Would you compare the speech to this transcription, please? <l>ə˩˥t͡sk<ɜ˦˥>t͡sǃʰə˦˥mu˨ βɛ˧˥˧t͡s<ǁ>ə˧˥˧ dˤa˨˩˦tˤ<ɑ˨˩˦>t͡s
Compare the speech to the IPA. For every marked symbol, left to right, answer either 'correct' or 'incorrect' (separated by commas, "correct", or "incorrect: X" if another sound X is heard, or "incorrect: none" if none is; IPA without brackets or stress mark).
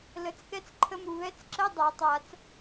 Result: correct, incorrect: ɛ˦˥, correct, incorrect: a˨˩˦